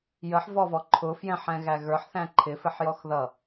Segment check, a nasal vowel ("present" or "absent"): present